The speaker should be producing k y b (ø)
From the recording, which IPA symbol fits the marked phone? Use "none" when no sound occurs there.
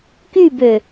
ø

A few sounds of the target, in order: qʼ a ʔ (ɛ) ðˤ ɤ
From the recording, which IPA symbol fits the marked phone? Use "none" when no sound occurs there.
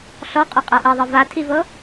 ɛ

